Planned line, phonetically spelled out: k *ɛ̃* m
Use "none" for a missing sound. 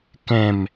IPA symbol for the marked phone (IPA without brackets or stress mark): ɛ̃